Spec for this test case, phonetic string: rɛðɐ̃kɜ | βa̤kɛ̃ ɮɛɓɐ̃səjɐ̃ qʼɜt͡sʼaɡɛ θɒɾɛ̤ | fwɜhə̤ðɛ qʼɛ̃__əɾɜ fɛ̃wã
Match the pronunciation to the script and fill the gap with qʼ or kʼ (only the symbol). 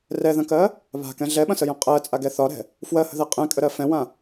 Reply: kʼ